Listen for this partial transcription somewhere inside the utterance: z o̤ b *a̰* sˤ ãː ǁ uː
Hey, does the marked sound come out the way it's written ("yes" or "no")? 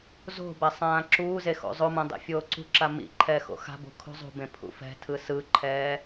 no